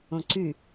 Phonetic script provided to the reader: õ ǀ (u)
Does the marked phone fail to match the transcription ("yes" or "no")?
yes